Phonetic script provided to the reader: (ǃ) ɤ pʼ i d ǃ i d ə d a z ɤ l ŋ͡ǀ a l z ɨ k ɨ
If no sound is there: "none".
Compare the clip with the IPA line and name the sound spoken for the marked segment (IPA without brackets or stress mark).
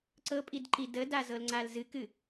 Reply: ǀ